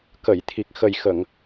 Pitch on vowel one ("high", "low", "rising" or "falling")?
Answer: low